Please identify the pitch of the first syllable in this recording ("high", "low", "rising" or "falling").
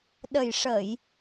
low